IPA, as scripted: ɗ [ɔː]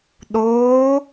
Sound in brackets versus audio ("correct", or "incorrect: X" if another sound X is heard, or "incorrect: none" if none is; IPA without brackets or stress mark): incorrect: oː